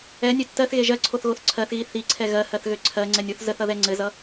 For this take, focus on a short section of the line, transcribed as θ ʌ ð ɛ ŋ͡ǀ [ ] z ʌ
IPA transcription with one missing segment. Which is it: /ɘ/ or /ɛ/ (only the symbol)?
ɘ